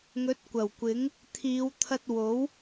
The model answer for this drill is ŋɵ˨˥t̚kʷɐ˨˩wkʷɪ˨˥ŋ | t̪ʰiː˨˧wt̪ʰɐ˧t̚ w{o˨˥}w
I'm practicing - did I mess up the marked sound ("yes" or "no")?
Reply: no